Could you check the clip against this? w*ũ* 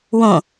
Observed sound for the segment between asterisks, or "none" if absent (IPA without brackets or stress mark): õ